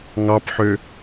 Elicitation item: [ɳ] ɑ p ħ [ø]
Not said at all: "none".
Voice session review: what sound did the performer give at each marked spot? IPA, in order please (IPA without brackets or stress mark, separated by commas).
ŋ, ø